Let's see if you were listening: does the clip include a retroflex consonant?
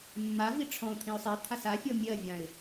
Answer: yes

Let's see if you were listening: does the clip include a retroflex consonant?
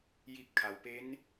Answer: no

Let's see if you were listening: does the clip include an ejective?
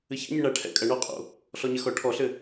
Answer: yes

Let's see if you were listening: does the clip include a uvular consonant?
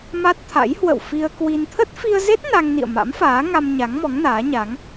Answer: no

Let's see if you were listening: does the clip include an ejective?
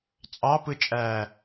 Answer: yes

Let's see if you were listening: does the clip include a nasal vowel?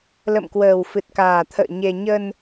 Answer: no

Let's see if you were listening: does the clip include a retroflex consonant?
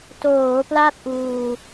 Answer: no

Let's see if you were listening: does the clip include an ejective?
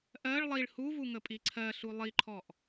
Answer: yes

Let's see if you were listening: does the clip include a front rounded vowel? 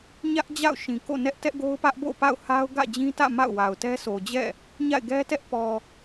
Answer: no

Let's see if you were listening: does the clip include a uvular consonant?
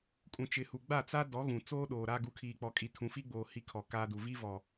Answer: no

